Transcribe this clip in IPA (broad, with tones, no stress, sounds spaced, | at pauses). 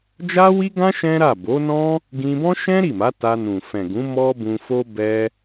d͡ʒ a˦ w i˦ ɡ ã˦ ʃ ɛ̃˦ ɾ a˦˨ b o˨˦ n ɔ̃˦ | ɡ ĩ˧ b ɔ̃˦ ʃ ɛ̃˦ ɾ i˦˨ m a˨˦ t a˧ n ũ˨ f ɛ̃˨ ɡ ũ˨˦ m ɔ˦ b ũ˧ f o˦ b ɛ˧